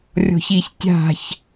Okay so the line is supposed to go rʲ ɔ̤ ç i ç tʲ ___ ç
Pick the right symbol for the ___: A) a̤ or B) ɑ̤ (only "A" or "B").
A